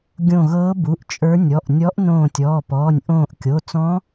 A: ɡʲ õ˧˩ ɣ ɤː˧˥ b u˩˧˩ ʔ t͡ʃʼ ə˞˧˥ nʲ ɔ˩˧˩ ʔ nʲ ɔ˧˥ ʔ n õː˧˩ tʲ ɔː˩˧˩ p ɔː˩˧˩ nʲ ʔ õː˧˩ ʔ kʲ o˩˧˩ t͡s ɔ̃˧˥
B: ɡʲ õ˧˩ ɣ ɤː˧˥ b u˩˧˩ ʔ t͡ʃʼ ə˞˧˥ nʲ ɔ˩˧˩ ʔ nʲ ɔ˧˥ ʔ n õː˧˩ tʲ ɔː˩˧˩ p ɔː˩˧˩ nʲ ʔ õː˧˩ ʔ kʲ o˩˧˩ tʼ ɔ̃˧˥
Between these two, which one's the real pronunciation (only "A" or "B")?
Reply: A